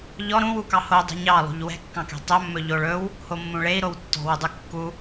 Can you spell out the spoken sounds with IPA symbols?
ʎ ɔ ɾ ũ w u k ɑ h o dˤ ṳ ɲ ɑ lˠ ṳ ʎ w ɛ̤ kː ɑ̃ k ɛ̤ tˤ ɵ mː ɵ ʎ o ɭ ɵ w | h o mː ũ ɭ e i̯ ɾ o w tː ɔ̤ w u dˤ u kː u

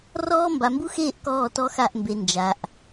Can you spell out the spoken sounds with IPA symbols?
r ɔː˦ m b a˨ m b u˦ x eː˦˨ ʔ k ɔː˦˨ t ɔ˦ x a˦˨ ʔ m b e˨ n d͡ʒ a˨ ʔ

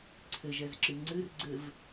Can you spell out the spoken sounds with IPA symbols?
ǀʰ ɘ ʒ ɛ z ǁ ɨ ŋ͡ǀ ɨ r ɡ͡ǀ ɘ v

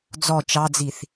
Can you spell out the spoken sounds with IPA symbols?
d͡z ɔ t͡ʃ ɑ d͡z i θ

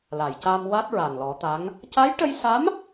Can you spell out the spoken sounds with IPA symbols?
l a˨˩˨ j c a˧ m w a˦˥ t̚ ɹ a˨˩ n l ɔ˨˩˦ t̪ a˧˥ ŋ | c a˧˥ j ʈ ə˧ j s a˧˥ m

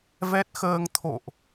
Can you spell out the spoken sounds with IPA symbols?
v ɛ˦˥ t̚ x əː˧ ŋ t̪ʰ o̰˧˨ ʔ

